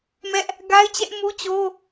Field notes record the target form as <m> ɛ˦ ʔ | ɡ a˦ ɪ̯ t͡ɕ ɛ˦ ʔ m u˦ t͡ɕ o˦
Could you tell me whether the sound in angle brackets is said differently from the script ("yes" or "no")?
no